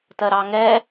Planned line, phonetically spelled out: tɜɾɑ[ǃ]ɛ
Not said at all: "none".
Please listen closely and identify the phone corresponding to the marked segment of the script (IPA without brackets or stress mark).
ŋ